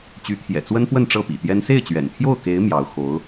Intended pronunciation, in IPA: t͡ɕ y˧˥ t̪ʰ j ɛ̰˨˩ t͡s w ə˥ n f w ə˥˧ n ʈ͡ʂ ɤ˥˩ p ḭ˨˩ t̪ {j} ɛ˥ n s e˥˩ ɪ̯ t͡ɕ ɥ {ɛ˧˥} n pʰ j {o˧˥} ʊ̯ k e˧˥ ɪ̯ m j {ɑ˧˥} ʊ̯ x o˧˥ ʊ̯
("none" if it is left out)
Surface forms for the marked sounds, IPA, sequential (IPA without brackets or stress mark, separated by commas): j, ɛ̰˨˩, o˥˩, ɑ˧˥